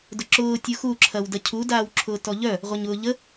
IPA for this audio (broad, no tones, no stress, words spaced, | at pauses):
dʊǁʊː tʲʊxu ǁʰɐwdɐcʰu daːwǁʰʊːtɔʎœ | ʁʷɐɲʊːʎə